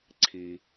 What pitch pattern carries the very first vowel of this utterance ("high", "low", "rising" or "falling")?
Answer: low